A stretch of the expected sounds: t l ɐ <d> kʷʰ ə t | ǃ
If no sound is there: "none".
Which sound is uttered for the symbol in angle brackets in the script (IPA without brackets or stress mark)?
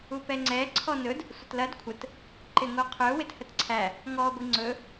d